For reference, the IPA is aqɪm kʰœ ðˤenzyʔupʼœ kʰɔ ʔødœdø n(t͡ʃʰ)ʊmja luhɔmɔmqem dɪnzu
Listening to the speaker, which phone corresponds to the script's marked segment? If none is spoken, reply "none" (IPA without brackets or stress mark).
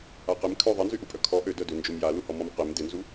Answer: d͡ʒ